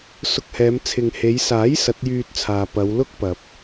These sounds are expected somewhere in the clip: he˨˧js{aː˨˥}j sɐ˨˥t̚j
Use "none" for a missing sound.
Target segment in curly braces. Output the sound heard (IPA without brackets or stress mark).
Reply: aː˨˥